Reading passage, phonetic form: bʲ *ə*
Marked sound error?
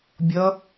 yes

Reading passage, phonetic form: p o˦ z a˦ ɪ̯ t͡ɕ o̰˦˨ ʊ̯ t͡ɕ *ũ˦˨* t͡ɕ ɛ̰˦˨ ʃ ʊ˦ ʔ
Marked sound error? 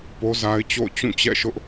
no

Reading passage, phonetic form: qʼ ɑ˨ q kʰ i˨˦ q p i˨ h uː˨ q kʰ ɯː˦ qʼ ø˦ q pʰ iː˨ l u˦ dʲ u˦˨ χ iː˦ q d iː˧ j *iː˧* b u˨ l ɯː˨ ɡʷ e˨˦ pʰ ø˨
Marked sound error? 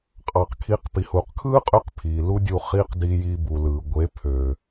no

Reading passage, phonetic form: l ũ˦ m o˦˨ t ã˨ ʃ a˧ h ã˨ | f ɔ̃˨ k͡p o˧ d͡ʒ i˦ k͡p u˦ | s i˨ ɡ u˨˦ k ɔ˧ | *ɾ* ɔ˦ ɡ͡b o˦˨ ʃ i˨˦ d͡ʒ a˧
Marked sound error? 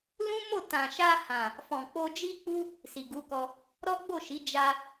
no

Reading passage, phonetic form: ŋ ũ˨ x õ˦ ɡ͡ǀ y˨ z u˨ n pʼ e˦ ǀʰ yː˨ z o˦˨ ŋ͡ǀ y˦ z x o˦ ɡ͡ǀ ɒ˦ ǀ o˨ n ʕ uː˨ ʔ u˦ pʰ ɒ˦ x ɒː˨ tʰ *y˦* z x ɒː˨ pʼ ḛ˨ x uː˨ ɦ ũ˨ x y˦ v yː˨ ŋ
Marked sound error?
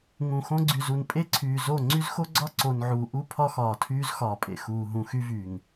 yes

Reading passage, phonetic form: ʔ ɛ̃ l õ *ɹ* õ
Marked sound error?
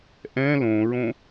no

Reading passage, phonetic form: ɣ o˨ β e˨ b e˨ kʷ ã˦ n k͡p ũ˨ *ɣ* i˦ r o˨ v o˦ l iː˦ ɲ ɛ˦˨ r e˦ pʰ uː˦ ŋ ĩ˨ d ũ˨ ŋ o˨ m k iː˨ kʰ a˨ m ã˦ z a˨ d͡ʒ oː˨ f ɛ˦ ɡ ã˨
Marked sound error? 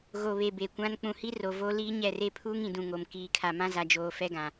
yes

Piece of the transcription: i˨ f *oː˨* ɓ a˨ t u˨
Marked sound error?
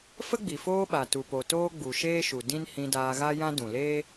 yes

